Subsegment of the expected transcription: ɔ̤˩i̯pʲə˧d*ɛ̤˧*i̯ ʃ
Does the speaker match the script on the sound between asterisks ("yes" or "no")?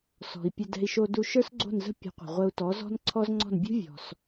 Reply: yes